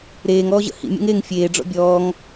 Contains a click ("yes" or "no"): no